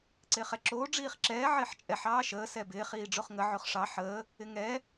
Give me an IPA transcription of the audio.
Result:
ǀ ɪː χ ɛ ǁ oː ɖ͡ʐ iː χ ǁ ɛː ʕ ɪː ħ t͡ʃʼ ɛ ħ ɑː ʃ əː s ɛ b ɪː χ iː ɖ͡ʐ o χ ŋ ə ʕ o χ ʂ ɑ ħ əː | ɪ ŋ ɛ

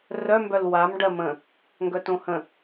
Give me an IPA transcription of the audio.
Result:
r œ m b œ l w a m ɖ ɜ m ə̃ | ŋ ɡ œ t õ h ə̃

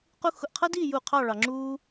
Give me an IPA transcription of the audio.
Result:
q u˧ x ʊ˧˩ ʔ qʰ ʌ˥ d iː˥˧ j u˧˩ qʰ ɑ˥˧ ɭ ɑ˧ ŋ͡ǁ uː˥

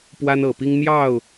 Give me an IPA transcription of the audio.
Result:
p w a˥ n ɤ˨˩ p i˥ ŋ n̪ j ɑ˥˩ ʊ̯

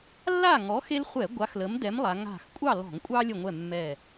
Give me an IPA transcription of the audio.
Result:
lː a˥˨ ŋ ɔ˨˥ x e˦ l χʷ ɛ˧˩˧ ɡʷ a˨˥ x l ə˨˥ m d ɛ˨˥ m lˠ a˩˧ ŋ a̤˧˩ x kʷʼ ɑ˥˨ l ɔ̤˧˩˧ ŋ kʷʼ ɑ˦ lʲ ə˧˩ ŋʷ ɛ˧˩ mː ɛ˧˩

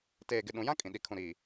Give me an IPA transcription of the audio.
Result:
t eː˨ ɡ ɪ˨ ɗ ũ˨ j ã˦ kʼ ĩ˨ ɗ i˨ kʰ ũ˨ ɾ i˨

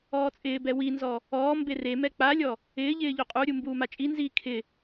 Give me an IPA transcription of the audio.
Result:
ɔː t͡sʼ ɪː b ɛ w i n z ɔ | ɔː m b e r e m ɛ k͡p a lʲ ɔ | ɪː ʎ ɪː ʎ o qʼ u ɾʲ u m b uː m a t͡ʃʼ i n z iː kʰ ɪ

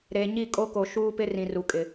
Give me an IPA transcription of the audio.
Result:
ɾ e˨ ɲ i˦˨ kʼ o˦ k o˨ ʃ uː˦ p ɪ˦ r ĩ˨ r u˨ kʼ ɪ˨

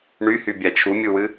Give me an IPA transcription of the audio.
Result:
ɳ y h y bʲ a t͡ʃʰ u mʲ u w ɨ

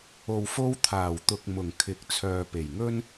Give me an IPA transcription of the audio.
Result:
o˨ w f o˧ w t̪ʰ aː˨˩ w t̪ ʊ˨ k̚ m ʊ˨˩ ŋ kʰ ɪ˨˥ k̚ t͡sʰ œː˨ p e˨˩ j ŋ ɵ˥ n

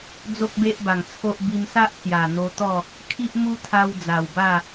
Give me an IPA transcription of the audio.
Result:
d͡z o˦ k̚ b e˦ ʔ b a˨˩ ŋ t͡sʰ o˦ ʔ b i˧ m s a˦ ʔ t͡s j a˨˩ n̪ o˧ t̪ ɔ˥˧ | kʰ i˦ ʔ m u˦ t̪ʰ a˧ w d͡z a˨˩ w b a˥˧

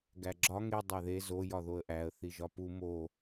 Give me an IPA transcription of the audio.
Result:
ɡ æ ɡ͡ǁ ɒ ŋ e dˤ æ ð e z o j ɒ ð o ə̯ ʔ æ ə̯ θ i ʒ ɒ p u m o

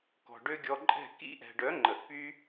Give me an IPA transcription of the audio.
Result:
k ɔ̤˨ ɖ ø˦ ɡʲ ɔ˧ ǃʼ ɛ̤˦˨ k ḭ˦ ʔ ɛ̤˨ ɖ œ˨˦ ŋ͡ǃ ə˨ ʔ p y˦

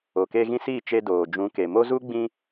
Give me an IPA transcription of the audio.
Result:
o˨ k e˧ ɣ ĩ˧ s i˦˨ t͡ʃ e˧ d oː˨ d͡ʒ ũ˨˦ k e˨ m o˦ z u˦ ɡ͡b ĩ˧

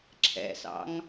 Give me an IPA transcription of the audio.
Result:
ǁʰ ɛ̰ s ɑ̰ ŋ

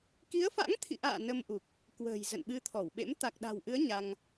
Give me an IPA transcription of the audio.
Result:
k i˨˦ ə̯ f a̰˧˥ ŋ t̪ʰ ḭ˧˨ ʔ a̰ː˧˨ n ə˧ m ʔ u˨˩ k̚ | k w ə̤ː˨˩ j z ə̰˧˨ n ɓ ɨ˧ t̪ʰ ɔ˧˩ w ɓ ḛ˧˥ m t̪ a˨˩ k̚ ɗ a̤˨˩ w ʔ ɨ˨˦ ə̯ ɲ a˧ ŋ

